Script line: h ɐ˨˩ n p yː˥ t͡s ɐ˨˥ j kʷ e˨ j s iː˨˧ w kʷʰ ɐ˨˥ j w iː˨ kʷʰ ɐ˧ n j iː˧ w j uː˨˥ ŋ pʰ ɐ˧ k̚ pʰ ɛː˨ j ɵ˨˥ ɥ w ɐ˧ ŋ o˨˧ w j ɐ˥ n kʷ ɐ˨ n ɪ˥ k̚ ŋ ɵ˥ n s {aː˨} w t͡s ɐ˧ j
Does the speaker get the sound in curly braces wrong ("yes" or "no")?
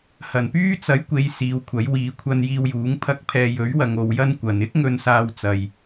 yes